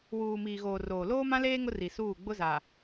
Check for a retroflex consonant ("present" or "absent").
absent